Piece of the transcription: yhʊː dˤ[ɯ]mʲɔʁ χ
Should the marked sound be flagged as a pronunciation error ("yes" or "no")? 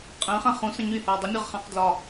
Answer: yes